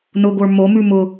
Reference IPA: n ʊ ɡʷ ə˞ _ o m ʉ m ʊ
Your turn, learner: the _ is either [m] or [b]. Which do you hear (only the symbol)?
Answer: m